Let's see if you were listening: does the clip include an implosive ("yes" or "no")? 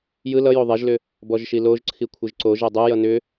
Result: no